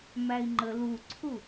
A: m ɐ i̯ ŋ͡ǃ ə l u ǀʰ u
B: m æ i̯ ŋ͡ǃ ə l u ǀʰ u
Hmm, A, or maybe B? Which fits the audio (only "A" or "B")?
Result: B